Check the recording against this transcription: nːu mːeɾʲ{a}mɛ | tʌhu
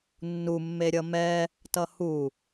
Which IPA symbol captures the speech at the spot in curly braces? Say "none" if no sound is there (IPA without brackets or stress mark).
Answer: ʌ